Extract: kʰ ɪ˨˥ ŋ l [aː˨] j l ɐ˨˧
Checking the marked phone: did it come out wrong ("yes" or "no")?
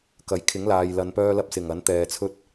no